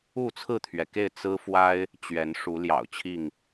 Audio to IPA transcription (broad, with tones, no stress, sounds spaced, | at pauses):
u˥˨ t͡sʰ ɹ̩˥˨ t̪ʰ ɥ ɛ˩ k e˥˨ ɪ̯ t͡s ɹ̩˦ f w a˦ ɪ̯ | t͡ɕ ɥ ɛ˨˦ n ʂ u˨˦ l j ɑ̰˨˩ ʊ̯ t͡ɕʰ i˥˨ ŋ